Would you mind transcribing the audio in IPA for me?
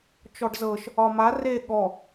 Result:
t͡ʃɔɖzɤʃ | ɒma re ɠɔ

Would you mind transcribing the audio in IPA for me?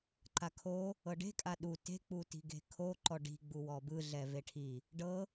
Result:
ǃakʰo | ɤɖe̤kʼa ɗu te̤k͡puti̤ ɡe̤kʰoǃɔ ɖi̤ ɡ͡buwɔbɯɮɛ veʈʰi | ɖɤ

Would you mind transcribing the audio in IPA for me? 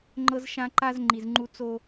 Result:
ŋ͡ǃɤ˦zʃã˦ǃa˦z ŋ͡ǃi˨zŋ͡ǃu˦ t͡so˦

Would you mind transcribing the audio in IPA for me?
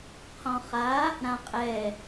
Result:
qʰɔ̃χa | ɾãqʼɛ

